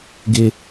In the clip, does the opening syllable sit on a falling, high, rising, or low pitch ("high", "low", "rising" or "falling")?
high